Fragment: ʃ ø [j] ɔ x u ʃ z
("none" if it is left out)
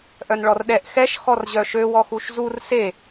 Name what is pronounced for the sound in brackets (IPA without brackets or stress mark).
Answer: w